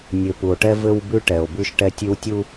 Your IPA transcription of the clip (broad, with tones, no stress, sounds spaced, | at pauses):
nʲ ɘ˨ p u˨ o̯ ʈ ɛ˦ v ɘ˦ w b ʉ˦ ʈ ɛ˨ o̯ b ʉ˦ ʃ ʈ ɛ˦ tʲ ʉ˦ w tʲ u˦